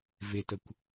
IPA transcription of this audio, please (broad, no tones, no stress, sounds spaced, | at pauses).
v e t ə kʷ